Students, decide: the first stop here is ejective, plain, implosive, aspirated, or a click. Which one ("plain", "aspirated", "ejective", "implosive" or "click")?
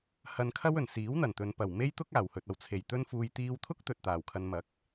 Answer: aspirated